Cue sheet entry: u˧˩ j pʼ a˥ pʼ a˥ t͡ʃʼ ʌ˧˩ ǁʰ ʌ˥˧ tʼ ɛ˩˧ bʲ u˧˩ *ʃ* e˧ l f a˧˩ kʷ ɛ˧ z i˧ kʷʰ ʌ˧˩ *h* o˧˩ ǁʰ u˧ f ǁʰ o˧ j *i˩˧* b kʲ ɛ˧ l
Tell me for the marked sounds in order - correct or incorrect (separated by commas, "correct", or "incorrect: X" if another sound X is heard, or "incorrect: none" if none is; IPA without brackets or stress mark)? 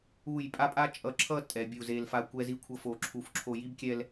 incorrect: z, incorrect: f, incorrect: i˥